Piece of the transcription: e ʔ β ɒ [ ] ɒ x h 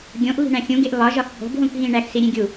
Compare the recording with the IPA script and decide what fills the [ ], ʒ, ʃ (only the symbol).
ʒ